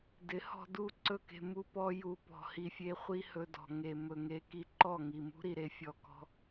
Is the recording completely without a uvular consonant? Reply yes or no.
no